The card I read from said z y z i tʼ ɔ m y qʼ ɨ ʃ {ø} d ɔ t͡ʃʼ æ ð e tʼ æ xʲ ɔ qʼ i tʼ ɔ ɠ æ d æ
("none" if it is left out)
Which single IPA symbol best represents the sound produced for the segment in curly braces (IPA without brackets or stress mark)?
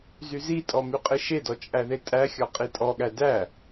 e